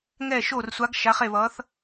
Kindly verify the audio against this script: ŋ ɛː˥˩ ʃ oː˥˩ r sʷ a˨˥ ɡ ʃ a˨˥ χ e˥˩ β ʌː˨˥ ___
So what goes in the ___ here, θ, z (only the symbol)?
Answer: θ